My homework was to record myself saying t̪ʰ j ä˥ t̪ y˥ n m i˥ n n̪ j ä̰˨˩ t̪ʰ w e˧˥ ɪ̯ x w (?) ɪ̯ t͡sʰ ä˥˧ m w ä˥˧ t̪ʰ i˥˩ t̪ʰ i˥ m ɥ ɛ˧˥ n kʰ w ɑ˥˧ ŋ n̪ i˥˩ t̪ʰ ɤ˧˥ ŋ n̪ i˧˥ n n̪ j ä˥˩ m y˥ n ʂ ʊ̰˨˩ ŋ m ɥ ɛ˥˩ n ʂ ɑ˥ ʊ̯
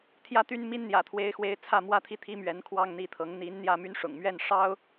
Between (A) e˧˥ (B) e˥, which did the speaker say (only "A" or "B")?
A